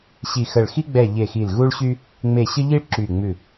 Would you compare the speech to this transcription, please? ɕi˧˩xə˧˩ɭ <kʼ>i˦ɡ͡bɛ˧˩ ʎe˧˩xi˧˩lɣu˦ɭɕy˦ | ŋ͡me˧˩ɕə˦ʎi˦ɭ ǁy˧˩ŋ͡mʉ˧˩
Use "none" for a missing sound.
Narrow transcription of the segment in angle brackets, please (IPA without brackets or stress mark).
x